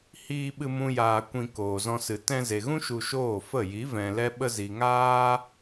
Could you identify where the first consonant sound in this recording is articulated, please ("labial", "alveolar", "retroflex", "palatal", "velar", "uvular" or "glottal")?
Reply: glottal